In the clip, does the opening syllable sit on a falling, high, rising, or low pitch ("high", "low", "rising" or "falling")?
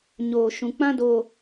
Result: low